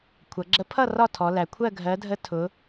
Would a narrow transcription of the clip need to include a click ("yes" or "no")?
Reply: yes